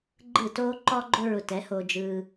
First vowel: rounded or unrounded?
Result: unrounded